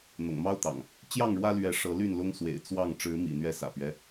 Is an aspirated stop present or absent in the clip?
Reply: absent